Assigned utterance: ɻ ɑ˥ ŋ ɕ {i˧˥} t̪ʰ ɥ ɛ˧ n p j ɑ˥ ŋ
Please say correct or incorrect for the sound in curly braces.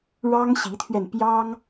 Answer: correct